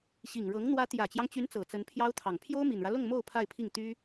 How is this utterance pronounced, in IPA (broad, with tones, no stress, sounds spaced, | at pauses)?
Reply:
ɕ i˨˩ ŋ ɻ ɤ˧˥ ŋ n̪ w ä˧˥ t̪ j ä˨˩ t͡ɕ j ɑ˦ ŋ t͡ɕ y˧˥ n t͡s ɤ˨˩ t͡s ə˧˥ n pʰ j ɑ˥ ʊ̯ t̪ʰ ɑ˨˩ ŋ pʰ j o˥ ʊ̯ m i˨˩ n ɻ ä˦ l ʊ˥˧ ŋ m o˥˧ ʊ̯ pʰ a˥˧ ɪ̯ pʰ i˥˩ ŋ t̪ y˥